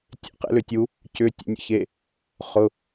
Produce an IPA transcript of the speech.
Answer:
tʲḛqḛ lʏtʲu | cʏ tʲḛnʲə̰çe | χʊ

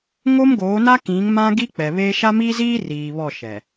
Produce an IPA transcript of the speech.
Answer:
ŋo˦mɡoː˨˦na˦kĩ˨˦ŋ mã˦ɡi˦k͡pɛ˨βeː˦ ʃa˦miː˦ziː˦ riː˨βɔ˦˨ʃɛ˨

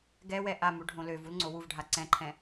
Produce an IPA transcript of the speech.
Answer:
ɡɛwɛ ʔamu ɖʱõløvul ŋ͡ǀowuvɖʱa ǀɛ̃ǃʰɛ̃

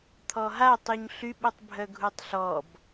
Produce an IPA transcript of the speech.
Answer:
t̪ʰɔɦatˤyɲ ɬyɓutˤbʱœ ɡʱutˤɬɔb

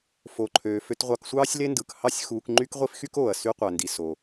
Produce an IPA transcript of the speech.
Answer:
fo˩ǃʰøː˩ fø˧tʁʷɑ˧k sʷɑː˥sʲle˥ndɯ˩k hɑ˥sʲxuː˧k ŋ͡ǃy˥kʁʷi˥fxy˥k oː˩ɐ̯sy˧qʷæ˩ndi˩ so˩

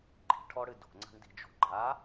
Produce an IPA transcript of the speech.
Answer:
ɡ͡ǃi̤ʈʰɔɽɨ do̤ŋ͡ǀa̤ɳdi̤d͡ʒo̤ ɡ͡ǃa

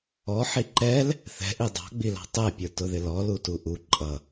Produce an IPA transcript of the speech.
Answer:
ɔħi ǃɛl | θɛ̤ʔi dˤɑ̤ɡ͡bilɑ̤ tˤɛpʲə˞tʊðɪ lɔlutu ʔu ǃʼʌ

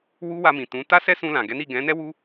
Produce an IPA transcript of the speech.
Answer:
wu˦ wa˧mĩ˨ tũ˨˦ ta˦sɛ˦sũ˧ lã˨ɡɛ˨˦ni˦˨ ɡɛ̃˨˦nɛ˦wu˦

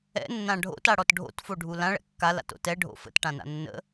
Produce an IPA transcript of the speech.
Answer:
ɛ̰nːã ɖʱo̰taɽɔt ɖʱo̰tfoɖʱu lãɭɛ̰ kːala̰to̰ tɛɖʱo̰ fə̰tʈãna̰ nːə̰

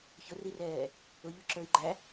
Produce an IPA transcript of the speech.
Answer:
çʊrirɛː | ʊʎʊǁə˞i̯ ɡ͡ǃæ

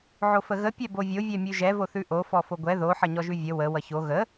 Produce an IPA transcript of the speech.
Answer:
ʕofəɣə pʲɛbovʲo vʲɛmʲʉʒɛ voθʉʔo fɔfoɡʷɛ ðo ħʌɲɔʒʉvʲə wə wʌço ɣə

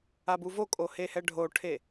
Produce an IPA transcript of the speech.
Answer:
abuvokʼo hehɛɖʱoʈʰe

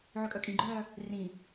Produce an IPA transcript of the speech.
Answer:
ʕøkʼœkʼĩɡ͡ǃœː | rĩ

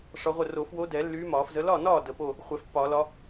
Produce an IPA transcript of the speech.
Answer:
ʂɒ˧˥ʁʷə˥˩ ro˨˩˦fwo˧˥dɛ˨˩˦ lːyː˧˥mɒː˨˩˦fzə˧˥ lɒ˥˩nɒː˥˩ də˨˩˦po˥˩ | χʷɛ˨˩˦fpːɒː˨˩˦ lɒ˧˥

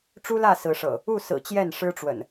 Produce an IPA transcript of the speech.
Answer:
ʈ͡ʂu˦lä˥˨ sɹ̩˨˦ʂɤ̰˨˩ | u˥˨sɹ̩˨˩ t͡ɕjɛ˥˨nʂɻ̩˦ʈ͡ʂwə̰˨˩n

